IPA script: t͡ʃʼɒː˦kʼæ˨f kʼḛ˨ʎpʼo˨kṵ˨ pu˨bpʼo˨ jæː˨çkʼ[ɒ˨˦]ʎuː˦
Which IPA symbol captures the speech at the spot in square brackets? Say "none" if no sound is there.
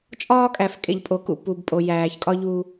ɒ˦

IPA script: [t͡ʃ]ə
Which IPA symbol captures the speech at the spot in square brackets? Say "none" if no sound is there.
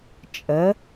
t͡ʃʼ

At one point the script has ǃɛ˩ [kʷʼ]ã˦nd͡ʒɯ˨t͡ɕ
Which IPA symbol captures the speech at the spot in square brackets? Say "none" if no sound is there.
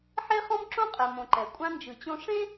kʷʼ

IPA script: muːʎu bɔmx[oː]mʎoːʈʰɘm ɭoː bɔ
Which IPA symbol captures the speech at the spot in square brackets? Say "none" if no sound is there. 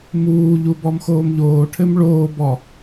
oː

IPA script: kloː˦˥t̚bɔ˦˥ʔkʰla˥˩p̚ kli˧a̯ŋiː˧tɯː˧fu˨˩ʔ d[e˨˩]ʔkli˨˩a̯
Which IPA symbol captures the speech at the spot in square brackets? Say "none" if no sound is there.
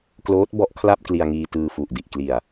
i˨˩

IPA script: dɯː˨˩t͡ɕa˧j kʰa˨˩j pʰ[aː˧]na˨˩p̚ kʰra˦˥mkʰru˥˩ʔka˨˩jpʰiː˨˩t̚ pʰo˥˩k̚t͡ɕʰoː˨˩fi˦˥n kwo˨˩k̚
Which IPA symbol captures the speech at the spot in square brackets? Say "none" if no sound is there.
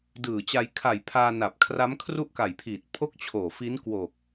aː˧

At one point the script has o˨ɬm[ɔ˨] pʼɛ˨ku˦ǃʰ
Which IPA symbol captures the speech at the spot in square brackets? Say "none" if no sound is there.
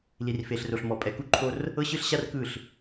ɔ˨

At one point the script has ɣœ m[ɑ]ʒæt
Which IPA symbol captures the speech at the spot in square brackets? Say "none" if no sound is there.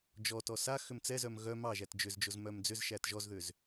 ɑ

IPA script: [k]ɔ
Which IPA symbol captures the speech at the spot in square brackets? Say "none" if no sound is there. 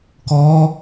k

